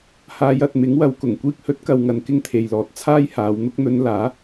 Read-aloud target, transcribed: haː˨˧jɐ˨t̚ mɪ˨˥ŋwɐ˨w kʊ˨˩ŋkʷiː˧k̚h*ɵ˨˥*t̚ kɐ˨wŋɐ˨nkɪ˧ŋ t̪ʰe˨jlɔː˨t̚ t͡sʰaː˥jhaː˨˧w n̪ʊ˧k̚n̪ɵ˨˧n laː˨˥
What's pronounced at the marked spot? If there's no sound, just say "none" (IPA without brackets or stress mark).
ɵ˨˥